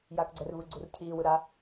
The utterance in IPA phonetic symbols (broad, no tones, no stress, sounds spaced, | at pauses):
j aː k ɡ͡ǀ ɛ r v ɯ ɡ͡ǀ u r cʰ iː w ɯ ɾ a